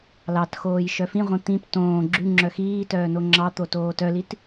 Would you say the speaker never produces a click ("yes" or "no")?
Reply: no